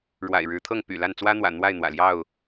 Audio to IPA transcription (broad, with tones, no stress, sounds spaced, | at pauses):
ɻ w a̰˨˩ ɪ̯ ɻ ɻ̩˨˦ t̪ʰ ɤ˥˨ ŋ p y̰˨˩ l a˥˨ n t͡s w ä˦ n̪ w ä̰˨˩ n̪ w a˥˨ ɪ̯ n̪ w ä̰˨˩ l j ɑ˥˨ ʊ̯